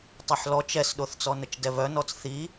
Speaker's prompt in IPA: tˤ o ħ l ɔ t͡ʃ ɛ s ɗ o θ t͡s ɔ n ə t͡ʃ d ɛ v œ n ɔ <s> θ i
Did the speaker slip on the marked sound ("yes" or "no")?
yes